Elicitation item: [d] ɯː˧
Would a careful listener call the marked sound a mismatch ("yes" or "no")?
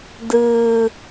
no